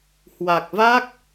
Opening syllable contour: low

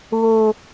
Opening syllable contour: high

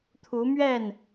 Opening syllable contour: rising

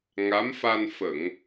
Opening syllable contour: rising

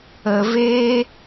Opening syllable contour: low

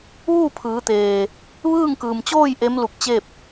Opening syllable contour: falling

